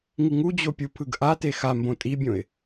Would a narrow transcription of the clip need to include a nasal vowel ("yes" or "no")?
yes